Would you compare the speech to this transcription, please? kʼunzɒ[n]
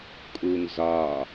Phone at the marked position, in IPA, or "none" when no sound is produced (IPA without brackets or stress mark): none